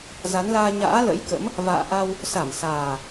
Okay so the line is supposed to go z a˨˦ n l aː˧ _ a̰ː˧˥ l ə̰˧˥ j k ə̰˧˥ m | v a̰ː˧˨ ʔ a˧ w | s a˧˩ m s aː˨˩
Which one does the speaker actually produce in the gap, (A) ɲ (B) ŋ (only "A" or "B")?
A